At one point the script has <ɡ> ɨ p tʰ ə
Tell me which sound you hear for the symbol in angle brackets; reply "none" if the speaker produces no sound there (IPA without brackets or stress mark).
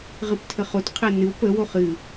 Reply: ʁ